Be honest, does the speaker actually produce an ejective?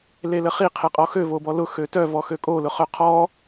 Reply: yes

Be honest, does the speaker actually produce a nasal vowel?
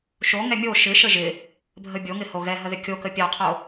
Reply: no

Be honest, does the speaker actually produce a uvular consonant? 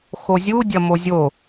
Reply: no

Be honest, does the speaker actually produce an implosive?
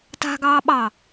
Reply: yes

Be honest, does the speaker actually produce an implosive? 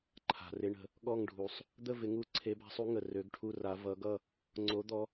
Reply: yes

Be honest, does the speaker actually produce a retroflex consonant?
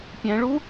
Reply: yes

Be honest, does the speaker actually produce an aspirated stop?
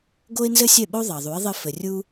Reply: no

